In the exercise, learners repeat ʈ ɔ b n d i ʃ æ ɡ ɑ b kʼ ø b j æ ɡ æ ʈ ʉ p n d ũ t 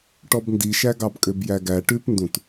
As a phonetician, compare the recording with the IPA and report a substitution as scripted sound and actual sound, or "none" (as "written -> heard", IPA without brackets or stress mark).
none